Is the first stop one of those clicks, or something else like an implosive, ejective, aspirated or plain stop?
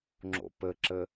click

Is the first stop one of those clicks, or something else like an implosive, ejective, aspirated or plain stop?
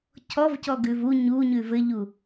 aspirated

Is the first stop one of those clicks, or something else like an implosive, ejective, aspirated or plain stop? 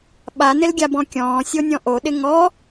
implosive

